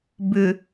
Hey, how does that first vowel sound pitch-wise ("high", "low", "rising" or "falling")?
low